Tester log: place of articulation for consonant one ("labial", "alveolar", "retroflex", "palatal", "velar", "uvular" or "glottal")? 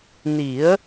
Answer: alveolar